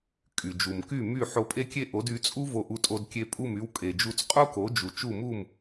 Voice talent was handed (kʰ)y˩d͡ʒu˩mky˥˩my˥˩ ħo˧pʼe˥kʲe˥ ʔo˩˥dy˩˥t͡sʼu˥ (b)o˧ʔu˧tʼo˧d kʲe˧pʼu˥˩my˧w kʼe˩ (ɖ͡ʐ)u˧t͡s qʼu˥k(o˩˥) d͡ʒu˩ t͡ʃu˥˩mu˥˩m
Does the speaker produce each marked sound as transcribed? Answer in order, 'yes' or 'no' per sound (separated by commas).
no, no, no, yes